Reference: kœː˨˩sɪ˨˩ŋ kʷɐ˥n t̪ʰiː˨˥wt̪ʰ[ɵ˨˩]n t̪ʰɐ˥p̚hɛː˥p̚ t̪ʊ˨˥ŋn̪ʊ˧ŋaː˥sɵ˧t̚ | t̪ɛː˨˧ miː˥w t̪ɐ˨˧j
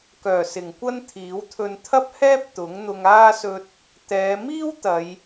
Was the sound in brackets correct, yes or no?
no